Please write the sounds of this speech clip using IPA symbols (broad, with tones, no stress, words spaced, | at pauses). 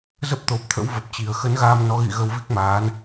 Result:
zə˦˥p̚t̪o˨˩p̚t̪ʰə̰˧˥w və˨˩p̚t͡ɕi˨˩ə̯ xə˨˦nɣaː˧mnɔ˨˦ɣḭ˧˨ ɣə˧wvi˦˥k̚maː˨˦n